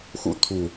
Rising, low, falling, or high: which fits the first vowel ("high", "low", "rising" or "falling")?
rising